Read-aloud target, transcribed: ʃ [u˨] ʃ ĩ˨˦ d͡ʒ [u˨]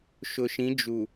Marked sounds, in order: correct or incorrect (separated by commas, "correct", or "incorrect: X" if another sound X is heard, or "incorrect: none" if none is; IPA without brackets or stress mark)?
incorrect: ʊ˨, correct